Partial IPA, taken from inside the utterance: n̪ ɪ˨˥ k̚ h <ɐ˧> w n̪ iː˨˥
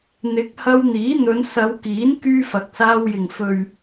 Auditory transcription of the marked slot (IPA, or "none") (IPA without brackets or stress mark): ɐ˧